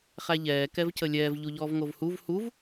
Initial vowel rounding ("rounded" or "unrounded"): unrounded